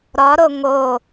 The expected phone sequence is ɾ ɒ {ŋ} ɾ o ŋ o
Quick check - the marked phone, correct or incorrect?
incorrect: none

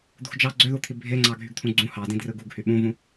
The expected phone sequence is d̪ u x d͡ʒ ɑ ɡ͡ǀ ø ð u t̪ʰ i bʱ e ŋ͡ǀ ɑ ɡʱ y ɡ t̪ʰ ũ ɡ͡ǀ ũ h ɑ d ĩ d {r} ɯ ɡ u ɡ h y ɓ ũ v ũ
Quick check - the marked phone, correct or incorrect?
correct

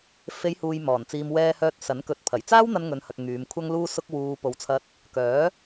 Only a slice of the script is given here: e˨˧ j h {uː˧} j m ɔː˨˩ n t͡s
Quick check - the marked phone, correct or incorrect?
incorrect: uː˨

